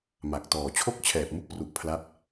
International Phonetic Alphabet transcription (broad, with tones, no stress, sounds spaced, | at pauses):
m a˨˩ k̚ t ɔː˨˩ t͡ɕʰ o˥˩ k̚ t͡ɕʰ ɛː˨˩ p̚ m u˦˥ k̚ p r u˨˩ ʔ pʰ l a˦˥ p̚